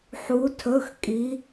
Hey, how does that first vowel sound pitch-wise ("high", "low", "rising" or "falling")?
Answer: rising